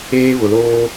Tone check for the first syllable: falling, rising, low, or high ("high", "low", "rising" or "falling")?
high